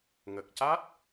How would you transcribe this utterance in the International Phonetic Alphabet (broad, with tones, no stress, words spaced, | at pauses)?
ŋə˨˩k̚ca˦˥t̚